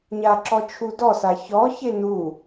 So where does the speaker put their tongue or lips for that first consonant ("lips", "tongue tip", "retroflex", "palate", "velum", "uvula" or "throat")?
palate